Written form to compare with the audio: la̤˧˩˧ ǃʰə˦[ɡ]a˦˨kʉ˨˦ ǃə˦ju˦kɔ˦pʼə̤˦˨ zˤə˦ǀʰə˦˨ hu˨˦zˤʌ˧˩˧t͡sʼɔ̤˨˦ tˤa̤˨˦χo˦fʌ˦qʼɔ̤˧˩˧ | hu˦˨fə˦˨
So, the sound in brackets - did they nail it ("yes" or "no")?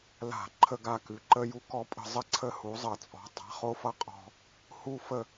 yes